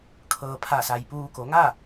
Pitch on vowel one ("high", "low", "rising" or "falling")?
low